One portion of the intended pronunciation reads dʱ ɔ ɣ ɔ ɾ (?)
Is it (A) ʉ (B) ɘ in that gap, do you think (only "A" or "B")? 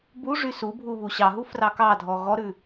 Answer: A